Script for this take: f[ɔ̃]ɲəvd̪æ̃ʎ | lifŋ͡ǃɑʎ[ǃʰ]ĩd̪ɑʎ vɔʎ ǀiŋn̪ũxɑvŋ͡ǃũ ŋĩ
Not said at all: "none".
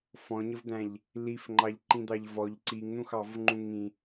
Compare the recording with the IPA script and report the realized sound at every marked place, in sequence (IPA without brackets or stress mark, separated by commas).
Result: ɔ̃, ǃ